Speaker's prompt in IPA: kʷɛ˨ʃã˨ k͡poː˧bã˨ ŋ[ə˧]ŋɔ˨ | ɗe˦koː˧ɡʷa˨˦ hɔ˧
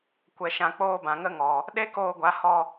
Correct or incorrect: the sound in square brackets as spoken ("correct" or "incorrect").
correct